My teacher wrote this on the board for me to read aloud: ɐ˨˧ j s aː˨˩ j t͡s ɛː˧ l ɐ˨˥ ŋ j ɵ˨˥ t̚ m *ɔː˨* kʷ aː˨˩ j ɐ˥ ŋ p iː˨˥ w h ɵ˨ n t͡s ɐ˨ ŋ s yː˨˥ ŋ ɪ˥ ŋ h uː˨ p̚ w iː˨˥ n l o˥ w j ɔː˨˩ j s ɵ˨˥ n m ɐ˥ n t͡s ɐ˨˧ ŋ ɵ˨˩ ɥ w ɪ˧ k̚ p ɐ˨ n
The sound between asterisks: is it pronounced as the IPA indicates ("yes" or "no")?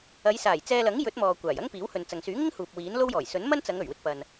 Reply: yes